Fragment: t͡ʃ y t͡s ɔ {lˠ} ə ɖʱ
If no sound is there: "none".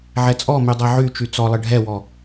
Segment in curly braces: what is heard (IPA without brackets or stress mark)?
lˠ